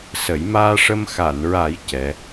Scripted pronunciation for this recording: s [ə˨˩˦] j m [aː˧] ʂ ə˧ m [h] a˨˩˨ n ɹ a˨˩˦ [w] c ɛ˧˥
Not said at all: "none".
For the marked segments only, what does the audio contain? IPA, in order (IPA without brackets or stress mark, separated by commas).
ə˨˩˦, aː˧, x, j